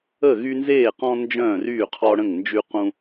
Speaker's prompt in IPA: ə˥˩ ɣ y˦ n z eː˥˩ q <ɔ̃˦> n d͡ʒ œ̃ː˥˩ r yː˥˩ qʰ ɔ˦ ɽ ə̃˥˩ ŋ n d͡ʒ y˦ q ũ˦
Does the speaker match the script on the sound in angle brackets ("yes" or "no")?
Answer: yes